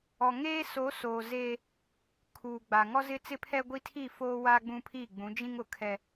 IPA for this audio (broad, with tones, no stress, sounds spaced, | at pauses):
ɔ˨ ŋ eː˦ s o˨˦ s oː˨ z eː˦ | kʰ uː˨ ɡ͡b a˨ ŋ ɔ˦ z ɪ˦ t͡s ɪ˦ pʰ ɛ˦ ɡʷ i˦ tʰ i˦˨ f oː˦ w a˦ ɡ͡b ũ˦ pʰ i˦˨ ɡ͡b ũ˨˦ d͡ʒ ĩ˦ ŋ ʊ˨ kʰ ɛ˦